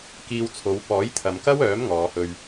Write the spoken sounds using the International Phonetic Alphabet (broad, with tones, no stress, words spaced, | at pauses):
kiː˧wt͡sʰo˨˧w pɔː˨˥jt̪ʰɐ˨mkɐ˥wœː˨˥m ŋɔː˨˧hɵ˧ɥ